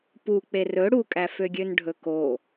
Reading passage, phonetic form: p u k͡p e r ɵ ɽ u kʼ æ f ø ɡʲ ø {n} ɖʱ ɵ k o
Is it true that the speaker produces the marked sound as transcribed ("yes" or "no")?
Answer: yes